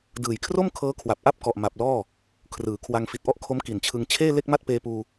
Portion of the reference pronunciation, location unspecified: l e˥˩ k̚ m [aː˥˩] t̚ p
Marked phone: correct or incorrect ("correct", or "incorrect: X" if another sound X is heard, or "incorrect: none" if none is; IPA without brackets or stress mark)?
incorrect: a˥˩